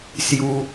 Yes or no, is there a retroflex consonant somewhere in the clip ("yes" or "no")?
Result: no